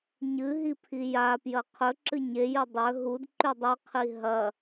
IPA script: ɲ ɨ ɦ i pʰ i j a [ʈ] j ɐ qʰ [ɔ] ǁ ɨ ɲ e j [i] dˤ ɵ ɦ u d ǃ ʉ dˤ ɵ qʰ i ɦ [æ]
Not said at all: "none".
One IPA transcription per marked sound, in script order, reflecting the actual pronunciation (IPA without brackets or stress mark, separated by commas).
p, ɵ, ɨ, ɐ